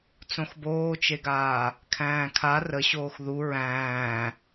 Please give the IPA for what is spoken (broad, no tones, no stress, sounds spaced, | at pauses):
t͡s õ x b oː t͡ʃ e ɡ aː | kʰ æ̃ː kʰ a r ə ɕ oː x ð u ɹ æ̃ː